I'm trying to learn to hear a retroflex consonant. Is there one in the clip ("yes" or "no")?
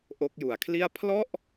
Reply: no